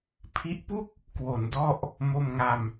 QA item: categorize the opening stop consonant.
aspirated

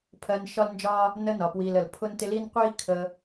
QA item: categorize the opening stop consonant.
aspirated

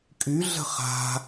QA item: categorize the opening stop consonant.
ejective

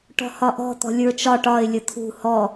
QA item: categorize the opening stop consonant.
plain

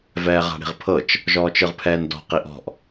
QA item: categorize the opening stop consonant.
aspirated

